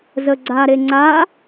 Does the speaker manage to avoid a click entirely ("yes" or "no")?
no